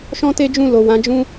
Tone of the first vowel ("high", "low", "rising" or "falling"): high